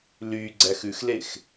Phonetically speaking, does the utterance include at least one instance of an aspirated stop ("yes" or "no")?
no